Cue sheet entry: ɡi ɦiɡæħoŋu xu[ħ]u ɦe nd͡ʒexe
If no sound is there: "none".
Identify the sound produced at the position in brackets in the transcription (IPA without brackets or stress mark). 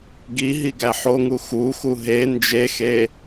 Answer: x